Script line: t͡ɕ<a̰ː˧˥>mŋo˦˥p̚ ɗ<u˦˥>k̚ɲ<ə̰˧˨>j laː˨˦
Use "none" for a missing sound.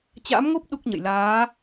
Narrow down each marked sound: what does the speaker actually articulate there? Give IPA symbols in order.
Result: a̰ː˧˥, u˦˥, ə̰˧˨

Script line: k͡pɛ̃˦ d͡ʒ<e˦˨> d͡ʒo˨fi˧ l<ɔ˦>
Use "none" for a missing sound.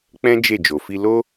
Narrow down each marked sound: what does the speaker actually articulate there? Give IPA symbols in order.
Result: e˦˨, o˦

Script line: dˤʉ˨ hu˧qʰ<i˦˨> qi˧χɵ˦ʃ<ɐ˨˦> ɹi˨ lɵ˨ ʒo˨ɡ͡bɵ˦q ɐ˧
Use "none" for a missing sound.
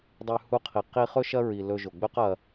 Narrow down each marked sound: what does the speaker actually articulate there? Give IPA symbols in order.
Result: i˨, ɐ˦

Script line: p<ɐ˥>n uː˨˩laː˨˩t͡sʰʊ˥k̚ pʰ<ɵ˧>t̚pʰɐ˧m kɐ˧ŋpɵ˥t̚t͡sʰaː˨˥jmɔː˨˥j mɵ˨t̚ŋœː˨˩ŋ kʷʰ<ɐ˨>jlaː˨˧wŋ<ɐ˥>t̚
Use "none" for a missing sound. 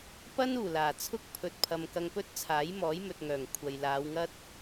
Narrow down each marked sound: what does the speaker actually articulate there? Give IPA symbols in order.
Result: ɐ˥, ɵ˧, ɐ˨, ɐ˥

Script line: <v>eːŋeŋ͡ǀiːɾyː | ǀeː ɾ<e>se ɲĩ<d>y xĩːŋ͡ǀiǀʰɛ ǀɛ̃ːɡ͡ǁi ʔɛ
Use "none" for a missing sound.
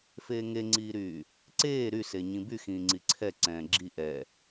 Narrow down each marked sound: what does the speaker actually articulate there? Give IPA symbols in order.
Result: f, y, b

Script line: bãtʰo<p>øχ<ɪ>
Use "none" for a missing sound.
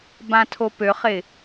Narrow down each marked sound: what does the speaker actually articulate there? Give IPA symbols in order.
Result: p, ɪ

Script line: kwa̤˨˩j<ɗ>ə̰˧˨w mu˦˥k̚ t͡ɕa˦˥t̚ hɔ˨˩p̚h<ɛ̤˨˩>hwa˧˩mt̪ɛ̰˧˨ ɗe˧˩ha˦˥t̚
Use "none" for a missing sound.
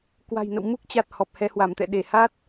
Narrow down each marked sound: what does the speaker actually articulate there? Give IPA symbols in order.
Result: n, ɛ˨˦

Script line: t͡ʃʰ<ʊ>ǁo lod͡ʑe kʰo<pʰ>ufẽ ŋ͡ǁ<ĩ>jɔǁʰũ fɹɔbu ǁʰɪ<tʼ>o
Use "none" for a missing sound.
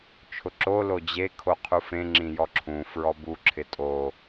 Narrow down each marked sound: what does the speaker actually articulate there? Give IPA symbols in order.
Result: ʊ, qʰ, ĩ, tʼ

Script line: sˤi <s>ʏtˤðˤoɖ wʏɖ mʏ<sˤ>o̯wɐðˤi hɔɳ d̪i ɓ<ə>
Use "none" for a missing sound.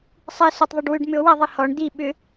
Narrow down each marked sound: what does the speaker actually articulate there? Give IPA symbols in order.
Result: s, none, ʏ

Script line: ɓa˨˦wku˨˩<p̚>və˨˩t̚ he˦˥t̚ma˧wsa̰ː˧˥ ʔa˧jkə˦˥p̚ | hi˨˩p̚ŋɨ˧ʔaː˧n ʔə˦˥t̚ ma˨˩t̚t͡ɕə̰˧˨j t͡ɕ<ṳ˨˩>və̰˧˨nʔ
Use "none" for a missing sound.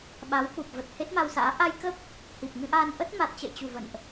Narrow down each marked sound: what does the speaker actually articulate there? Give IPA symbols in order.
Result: p̚, ṳ˨˩

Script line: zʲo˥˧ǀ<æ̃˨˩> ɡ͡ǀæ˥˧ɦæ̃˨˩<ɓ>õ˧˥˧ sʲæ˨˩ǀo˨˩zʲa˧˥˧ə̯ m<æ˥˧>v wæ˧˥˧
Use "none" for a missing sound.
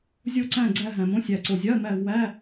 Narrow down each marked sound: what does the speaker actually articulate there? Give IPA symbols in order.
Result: æ̃˥˧, m, æ˥˧

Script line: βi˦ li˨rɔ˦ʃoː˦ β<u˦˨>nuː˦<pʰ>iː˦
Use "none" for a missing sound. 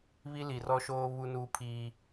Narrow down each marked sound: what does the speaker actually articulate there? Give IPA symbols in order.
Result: u˦, pʰ

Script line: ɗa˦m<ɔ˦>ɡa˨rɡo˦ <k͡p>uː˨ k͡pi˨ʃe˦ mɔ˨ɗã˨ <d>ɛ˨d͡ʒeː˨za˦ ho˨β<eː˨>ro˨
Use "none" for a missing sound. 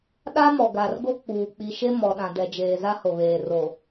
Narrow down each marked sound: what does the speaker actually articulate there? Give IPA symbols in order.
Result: ɔ˨, k͡p, d, eː˨

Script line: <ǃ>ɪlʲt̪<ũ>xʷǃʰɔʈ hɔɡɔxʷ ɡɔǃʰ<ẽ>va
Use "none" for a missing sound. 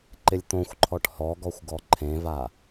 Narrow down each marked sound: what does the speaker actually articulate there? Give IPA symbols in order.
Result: ǃ, õ, ẽ

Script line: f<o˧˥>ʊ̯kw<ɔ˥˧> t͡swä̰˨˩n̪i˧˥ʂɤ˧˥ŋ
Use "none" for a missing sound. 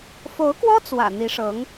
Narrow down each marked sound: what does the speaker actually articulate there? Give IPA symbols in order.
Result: o˧˥, ɔ˥

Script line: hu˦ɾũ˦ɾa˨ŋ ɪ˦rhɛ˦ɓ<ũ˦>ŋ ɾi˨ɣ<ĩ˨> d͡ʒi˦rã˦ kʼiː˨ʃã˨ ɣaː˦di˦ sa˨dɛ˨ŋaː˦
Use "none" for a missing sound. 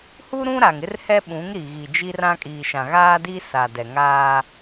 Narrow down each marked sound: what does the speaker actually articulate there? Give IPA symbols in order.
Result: ũ˨˦, i˨

